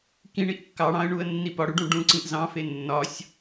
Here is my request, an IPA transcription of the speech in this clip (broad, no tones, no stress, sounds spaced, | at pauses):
k ĩ ɳ i ʔ kː ɑ ɽ ɑ̃ ə̯ ɳ u ə̯ nː i p ɒ ɽ u ɖ ũ ɖ ũ ǀ ĩ ʔ z ɑ̃ f e nː ɒ sʲ